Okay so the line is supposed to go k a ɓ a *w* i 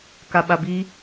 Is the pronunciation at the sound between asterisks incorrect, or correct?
incorrect